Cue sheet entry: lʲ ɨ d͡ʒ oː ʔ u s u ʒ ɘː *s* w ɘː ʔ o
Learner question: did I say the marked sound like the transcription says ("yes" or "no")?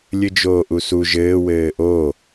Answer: no